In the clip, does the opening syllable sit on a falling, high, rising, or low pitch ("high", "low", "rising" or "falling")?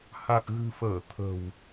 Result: low